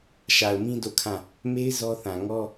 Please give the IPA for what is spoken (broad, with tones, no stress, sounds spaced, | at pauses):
ʃ a˨ ʊ̯ m ĩ˦ d o˦˨ kʰ ã˦˨ | m e˦ ɪ̯ z ɔ˦ θ ã˨ ŋ ɔ˦